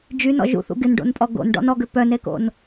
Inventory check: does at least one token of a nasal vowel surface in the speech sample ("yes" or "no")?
no